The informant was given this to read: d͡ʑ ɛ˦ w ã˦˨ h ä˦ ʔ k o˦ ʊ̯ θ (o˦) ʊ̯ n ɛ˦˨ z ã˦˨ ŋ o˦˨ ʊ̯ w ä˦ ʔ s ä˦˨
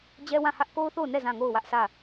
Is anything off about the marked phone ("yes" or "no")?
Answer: yes